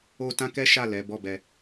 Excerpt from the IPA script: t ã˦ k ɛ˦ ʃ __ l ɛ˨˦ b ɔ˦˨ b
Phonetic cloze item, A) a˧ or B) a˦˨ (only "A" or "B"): B